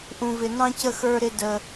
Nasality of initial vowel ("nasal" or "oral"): nasal